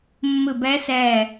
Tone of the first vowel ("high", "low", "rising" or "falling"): falling